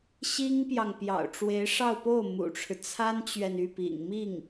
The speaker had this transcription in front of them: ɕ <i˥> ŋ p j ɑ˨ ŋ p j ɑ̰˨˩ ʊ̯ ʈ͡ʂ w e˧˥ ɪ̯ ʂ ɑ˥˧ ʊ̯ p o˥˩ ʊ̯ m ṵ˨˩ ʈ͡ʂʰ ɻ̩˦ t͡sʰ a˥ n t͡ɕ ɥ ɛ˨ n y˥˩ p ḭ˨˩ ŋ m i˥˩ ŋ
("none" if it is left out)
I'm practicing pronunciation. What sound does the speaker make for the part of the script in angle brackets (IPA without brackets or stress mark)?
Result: i˥